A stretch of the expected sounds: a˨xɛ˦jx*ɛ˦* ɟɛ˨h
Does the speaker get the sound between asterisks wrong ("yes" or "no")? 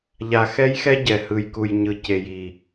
no